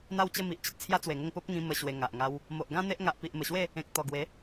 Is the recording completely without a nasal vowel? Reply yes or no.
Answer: no